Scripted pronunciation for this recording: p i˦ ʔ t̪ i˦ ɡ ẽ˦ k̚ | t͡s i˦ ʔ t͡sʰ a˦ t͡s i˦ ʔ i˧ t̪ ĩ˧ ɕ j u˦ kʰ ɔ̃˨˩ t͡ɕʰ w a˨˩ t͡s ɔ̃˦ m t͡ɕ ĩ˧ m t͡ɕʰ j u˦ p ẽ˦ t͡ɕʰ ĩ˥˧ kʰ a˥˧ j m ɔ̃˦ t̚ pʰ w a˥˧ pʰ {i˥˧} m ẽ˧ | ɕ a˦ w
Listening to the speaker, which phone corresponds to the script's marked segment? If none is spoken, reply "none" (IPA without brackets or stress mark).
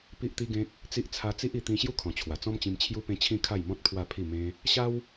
i˥˧